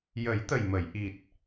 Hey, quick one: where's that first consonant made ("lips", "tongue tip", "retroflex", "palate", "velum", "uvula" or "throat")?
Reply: palate